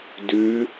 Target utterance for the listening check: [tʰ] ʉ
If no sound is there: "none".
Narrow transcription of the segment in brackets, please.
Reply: d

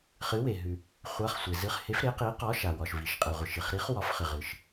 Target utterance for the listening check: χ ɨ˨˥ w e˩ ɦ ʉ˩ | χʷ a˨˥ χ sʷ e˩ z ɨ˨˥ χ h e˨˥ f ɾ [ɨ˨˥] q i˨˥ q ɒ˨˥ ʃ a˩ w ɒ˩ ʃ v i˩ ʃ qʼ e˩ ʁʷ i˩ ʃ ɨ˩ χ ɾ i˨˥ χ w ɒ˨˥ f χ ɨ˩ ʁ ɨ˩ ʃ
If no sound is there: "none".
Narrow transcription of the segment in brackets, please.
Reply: e˨˥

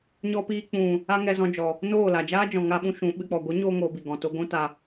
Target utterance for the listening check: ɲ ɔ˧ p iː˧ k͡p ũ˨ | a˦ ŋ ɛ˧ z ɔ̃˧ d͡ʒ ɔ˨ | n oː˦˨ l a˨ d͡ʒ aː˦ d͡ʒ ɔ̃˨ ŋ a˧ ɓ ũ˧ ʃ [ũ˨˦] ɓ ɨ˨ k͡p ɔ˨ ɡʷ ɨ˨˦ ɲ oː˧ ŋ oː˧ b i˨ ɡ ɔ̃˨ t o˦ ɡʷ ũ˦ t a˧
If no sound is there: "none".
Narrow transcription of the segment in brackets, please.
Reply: ũ˨˦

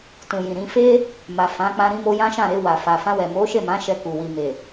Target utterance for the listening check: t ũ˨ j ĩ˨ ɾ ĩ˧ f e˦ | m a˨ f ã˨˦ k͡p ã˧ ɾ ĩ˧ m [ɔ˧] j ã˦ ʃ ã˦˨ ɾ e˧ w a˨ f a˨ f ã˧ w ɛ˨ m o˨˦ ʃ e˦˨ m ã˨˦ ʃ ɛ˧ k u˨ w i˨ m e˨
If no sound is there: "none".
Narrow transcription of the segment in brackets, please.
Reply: o˧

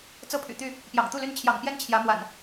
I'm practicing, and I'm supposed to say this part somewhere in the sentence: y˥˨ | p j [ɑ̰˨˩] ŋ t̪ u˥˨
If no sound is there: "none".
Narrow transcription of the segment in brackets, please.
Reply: ɑ̰˨˩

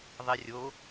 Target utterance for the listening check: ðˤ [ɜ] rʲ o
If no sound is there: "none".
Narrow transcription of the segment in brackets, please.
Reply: ɛ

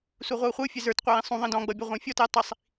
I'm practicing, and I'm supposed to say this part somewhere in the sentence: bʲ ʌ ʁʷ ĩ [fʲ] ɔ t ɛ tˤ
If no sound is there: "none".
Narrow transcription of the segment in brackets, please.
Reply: fʲ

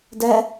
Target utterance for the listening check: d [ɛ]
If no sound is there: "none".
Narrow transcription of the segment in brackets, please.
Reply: ɛ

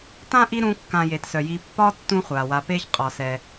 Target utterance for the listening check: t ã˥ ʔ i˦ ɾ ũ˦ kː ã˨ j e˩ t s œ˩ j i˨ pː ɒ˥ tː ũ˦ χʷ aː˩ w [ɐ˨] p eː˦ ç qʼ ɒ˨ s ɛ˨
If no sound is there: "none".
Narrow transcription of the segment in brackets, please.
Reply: a˨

